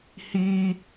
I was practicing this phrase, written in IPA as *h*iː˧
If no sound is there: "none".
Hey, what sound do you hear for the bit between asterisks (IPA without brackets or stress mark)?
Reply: h